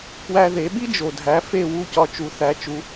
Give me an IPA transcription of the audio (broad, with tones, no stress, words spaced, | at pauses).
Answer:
kwæ˧ðe˩˥ɓi˥ d͡ʒo˩dʱæ˩˥ fe˥˩wu˥˩ cɒ˧t͡ʃu˩˥θæ˩˥t͡ʃu˩˥